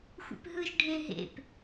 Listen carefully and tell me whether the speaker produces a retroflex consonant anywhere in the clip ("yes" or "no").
yes